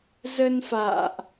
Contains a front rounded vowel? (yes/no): no